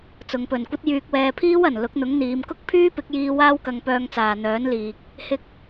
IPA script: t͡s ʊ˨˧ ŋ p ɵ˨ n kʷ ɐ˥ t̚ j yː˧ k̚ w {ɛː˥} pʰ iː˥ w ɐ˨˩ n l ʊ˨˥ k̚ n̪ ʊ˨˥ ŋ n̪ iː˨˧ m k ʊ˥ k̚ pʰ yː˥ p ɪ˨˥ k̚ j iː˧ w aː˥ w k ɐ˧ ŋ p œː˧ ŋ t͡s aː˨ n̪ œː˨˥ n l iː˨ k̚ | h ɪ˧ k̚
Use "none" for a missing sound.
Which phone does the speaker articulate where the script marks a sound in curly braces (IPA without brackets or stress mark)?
ɛː˧